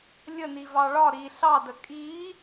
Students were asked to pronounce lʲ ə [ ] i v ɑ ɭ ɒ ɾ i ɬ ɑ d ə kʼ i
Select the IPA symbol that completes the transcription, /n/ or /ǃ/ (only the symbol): n